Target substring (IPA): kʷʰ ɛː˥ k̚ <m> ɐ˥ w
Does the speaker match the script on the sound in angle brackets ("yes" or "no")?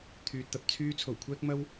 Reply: yes